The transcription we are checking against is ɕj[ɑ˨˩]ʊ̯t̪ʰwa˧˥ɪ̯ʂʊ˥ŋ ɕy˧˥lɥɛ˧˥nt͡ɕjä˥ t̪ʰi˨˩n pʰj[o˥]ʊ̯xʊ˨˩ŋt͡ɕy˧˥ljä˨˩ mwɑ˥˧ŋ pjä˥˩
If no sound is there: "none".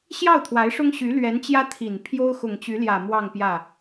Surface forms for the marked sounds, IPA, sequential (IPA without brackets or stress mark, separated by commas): ɑ˥˩, o˥